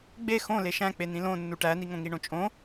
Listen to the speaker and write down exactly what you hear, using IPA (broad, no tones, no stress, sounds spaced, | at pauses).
ɡ͡b e x õ l e ʃ æ̃ k͡p e n ĩ l õ nː u ʈ æ n i ŋ õ ŋ i ɳ õ t͡ʃʼ õ